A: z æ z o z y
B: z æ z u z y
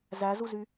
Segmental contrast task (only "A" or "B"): B